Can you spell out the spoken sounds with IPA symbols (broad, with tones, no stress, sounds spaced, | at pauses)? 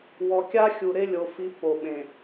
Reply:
w ɔ˨ kʲ a˦ xʲ u˨ ɾ e˦ lʲ o˨ f i˨˦ pː o˨ ɓ ẽ˨